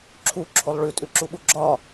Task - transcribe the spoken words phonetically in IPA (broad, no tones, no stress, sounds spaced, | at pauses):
ǁʰ u ǁʰ o lˠ ɭ ʉ tʼ ʉ ǁ u ɓ u ɡ͡ǁ ɒ